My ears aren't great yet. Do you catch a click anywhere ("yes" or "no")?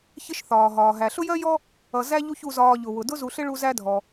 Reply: no